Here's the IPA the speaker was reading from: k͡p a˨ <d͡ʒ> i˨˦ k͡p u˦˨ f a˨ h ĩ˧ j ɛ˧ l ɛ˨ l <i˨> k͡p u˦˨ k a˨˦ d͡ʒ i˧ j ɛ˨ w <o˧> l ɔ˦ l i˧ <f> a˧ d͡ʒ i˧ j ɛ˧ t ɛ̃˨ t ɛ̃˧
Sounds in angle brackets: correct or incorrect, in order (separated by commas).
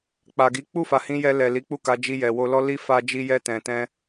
incorrect, incorrect, correct, correct